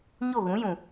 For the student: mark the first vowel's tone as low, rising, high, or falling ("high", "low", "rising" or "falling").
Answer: falling